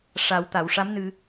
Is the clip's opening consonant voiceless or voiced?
voiceless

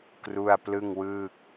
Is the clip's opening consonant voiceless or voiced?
voiceless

